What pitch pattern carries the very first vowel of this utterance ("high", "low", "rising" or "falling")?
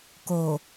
low